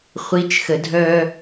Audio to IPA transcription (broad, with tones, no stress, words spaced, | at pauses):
χʷi˨˦t͡ʃxə˨dʱœ˦